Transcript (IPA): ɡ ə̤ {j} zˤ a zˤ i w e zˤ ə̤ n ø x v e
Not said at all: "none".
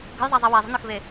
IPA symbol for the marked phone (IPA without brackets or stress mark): j